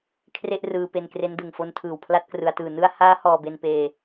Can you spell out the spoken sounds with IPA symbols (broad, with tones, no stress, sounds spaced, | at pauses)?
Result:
kʰ r e˥˩ ʔ r ɯː˧ p e˧ n k r e˦˥ n d ɯ˨˩ ŋ f o˦˥ n tʰ ɯː˨˩ w pʰ l a˦˥ t̚ k r ɯ˩˦ a̯ t ɯː˨˩ n ɯ˧ a̯ h aː˦˥ h ɔː˧ b e˧ n p eː˧